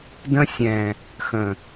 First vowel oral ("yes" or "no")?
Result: no